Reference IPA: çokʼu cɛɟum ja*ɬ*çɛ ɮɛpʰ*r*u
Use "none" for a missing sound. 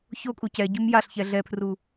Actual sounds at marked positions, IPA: ɬ, r

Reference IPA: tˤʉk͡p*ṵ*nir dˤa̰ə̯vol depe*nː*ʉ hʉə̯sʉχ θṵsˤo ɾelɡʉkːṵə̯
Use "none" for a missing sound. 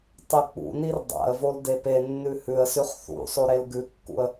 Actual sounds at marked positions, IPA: ṵ, nː

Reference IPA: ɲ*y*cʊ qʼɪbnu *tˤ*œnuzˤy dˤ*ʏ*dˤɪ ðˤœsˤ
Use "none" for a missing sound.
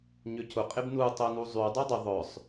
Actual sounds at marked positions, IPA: ʏ, tˤ, y

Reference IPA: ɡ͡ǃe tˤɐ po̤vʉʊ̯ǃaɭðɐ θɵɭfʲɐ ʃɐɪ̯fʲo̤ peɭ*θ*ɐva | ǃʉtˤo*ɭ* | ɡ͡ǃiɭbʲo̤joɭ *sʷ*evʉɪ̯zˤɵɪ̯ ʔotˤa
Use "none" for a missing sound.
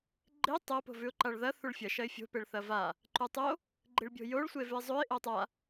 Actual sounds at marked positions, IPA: θ, none, sʷ

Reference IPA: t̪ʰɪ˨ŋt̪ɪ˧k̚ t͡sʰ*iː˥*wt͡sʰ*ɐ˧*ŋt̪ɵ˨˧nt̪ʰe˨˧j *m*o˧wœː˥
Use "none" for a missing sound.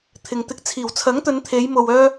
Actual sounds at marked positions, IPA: iː˨˩, ɐ˨˥, m

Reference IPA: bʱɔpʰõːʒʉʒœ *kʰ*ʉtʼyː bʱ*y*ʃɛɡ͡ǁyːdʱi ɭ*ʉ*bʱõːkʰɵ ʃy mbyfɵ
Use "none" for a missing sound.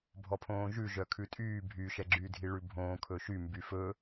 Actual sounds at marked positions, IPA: kʰ, y, ʉ

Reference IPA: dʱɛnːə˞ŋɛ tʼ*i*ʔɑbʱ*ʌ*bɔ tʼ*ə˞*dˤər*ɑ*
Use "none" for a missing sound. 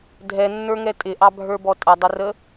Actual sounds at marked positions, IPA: ɪ, ə˞, ʌ, ə

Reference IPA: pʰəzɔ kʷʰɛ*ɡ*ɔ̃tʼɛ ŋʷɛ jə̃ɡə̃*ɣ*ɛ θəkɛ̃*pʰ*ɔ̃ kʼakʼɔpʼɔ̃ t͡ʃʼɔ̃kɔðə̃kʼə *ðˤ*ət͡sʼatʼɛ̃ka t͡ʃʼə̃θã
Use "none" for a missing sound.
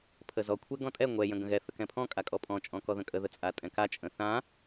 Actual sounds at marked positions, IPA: ɡ, ɣ, pʰ, ð

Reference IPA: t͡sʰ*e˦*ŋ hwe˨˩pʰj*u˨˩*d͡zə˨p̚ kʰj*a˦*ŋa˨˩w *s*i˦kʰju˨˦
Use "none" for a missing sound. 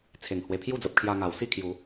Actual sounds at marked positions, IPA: e˨˩, u˥˧, a˧, s

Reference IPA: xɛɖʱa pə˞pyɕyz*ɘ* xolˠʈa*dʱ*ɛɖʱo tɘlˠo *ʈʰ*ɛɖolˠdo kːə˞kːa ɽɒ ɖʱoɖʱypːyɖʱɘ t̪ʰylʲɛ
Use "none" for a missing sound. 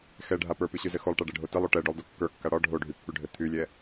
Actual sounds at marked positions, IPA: ɘ, ɖ, ʈ

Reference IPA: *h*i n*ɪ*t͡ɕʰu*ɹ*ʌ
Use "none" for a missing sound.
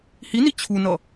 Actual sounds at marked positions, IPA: h, i, n

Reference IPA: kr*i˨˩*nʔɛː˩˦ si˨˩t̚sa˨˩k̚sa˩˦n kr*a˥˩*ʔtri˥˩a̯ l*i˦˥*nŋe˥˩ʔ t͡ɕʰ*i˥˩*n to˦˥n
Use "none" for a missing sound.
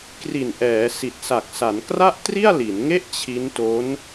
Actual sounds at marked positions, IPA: i˨˩, a˥˩, i˩˦, i˦˥

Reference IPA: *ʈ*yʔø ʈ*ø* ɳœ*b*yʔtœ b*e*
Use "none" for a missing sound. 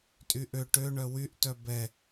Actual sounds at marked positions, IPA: tʼ, ø, w, ɛ

